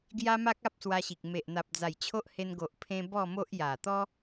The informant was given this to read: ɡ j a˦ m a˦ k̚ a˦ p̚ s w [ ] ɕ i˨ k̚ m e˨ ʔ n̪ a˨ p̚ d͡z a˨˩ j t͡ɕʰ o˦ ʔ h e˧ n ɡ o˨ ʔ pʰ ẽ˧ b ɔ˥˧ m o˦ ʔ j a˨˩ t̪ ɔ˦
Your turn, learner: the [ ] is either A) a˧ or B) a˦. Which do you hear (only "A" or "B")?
A